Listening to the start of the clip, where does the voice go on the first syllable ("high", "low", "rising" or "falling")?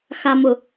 low